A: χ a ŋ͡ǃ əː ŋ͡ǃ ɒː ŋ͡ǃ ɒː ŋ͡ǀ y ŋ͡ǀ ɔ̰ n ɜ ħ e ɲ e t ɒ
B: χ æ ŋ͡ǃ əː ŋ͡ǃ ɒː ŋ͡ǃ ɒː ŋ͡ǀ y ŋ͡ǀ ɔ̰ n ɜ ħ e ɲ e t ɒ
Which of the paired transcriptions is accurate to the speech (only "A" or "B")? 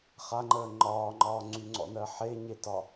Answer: A